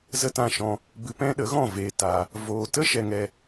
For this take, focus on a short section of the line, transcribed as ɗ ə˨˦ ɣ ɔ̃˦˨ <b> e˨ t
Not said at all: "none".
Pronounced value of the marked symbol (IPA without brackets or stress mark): v